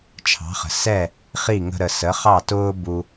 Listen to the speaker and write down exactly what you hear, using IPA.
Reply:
t͡ʃʰɑ̤˩˥χə̤˩ sɛ˥˩ | χi˥˩ŋə̤˧ɾə˩ sə˩˥χɑ˥˩tʊː˥ bu˧

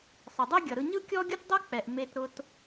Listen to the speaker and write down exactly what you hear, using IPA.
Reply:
sˤə˩dˤe˥ɡʲʌ˩ɾɯ˧ ɲɯ˥kʲɔ˥ɡʲʊ˥t dˤʌ˥k͡pɛ˩ʔ me˧tɾʊ˧t

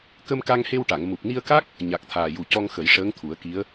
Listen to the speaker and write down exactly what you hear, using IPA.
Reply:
kə˧mka˧ŋhe˧wʈa˨˩˨ŋ mu˨˩p̚ni˧ə̯ka˦˥k̚ | ɲa˨˩k̚t̪ʰaː˨˩ju˨˩cɔ˧ŋ xə˨˩˦jʂəː˧˥ŋt̪ʰu˨˩˦ə̯ki˧˥ə̯

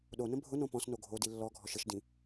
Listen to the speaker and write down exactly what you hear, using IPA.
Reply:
ɗonə̃ bʱʊnõ pɔ̃sno ɡʱodi lːɔɡʱɔʃ əʃdĩ

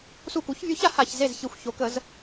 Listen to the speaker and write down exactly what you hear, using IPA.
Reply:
su˧˩ku˩˥çvʲø˧˥ça˩˥ ha˧˩ç ze˧˩zçi˨˩˦xʷ ço˩˥kə˨˩˦z

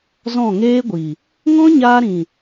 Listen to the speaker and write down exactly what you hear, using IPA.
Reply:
zɔ̃˦˨ŋeː˦ɡʷi˨ | ŋɔ̃˦ɲaː˧ɾĩ˨

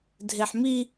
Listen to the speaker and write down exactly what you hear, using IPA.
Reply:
dʱeħmi

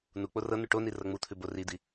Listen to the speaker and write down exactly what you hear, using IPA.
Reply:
nuk͡po rɤ nʉʈoni rɤŋ͡mut̪ʰʉ borid̪i

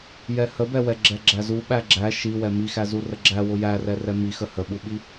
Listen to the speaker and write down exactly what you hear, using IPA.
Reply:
jɛhəbɛ wɛɡ͡ǁɛɡ͡ǁæzu ɓæɡ͡ǁæ ʃiwɛ mixæ zurəɡ͡ǁæ wʊjærɛrɛ mixə həɓuɓi

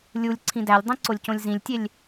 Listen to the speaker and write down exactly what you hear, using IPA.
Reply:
lʲulʲ ǀʰĩdælʲdˤĩ ǀolʲcõlʲzĩlʲtʲelʲ

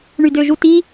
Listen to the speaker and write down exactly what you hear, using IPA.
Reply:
ɳydøʒuti

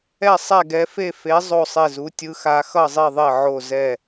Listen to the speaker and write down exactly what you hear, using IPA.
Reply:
ɛ˥˨sˤɛ˥˨ɡɛ˧˥fe˥˨ fe˧˥ zˤo˥˨sˤe˥˨zu˧˥ tʲɯ˧˥xa˧˥ xʌ˥˨zˤi˥˨ðˤe˥˨ ʕo˥˨zɛ˥˨

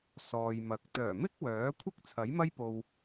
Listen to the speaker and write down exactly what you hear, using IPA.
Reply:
sɔː˨jmɐ˨k̚ t̪œː˨˩mɪ˥k̚ wœː˨˥kʷʰɪ˥k̚ t͡sʰɐ˨˥jmɐ˥jpo˧w

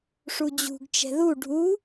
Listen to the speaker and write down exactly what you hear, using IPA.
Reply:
ʂud͡ʑṳɡ t͡ʃɛ̤ðu ɖʱu

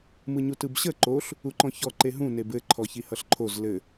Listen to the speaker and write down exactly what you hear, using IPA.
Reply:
mɯɲutɯbɕə ǃoɬ | uǃɔ̃çɔ ǃeɦũ nebɘ ǃʰɔçihʌɬǃʰoz lɘ

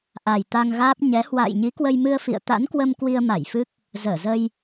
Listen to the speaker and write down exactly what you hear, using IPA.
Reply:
ʔa˨˩j t̪a˧ŋɣaː˦˥p̚ ɲɛ˨˦ hwa̰ː˧˨jɲi˨˦ kwə˧jmɨ˧ə̯fḭ˧˨ə̯ t̪a̰˧˥nkwə˧m kwi˧ə̯ma˧˩jfɨ˦˥k̚ | zəː˧˩zə˧j

